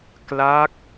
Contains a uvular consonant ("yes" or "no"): no